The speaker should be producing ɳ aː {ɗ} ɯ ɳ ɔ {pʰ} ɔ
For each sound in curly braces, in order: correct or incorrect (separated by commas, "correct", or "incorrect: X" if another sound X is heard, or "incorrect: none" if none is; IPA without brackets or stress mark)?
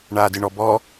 incorrect: d, incorrect: b